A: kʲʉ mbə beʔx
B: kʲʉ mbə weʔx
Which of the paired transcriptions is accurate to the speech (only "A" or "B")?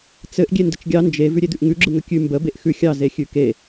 A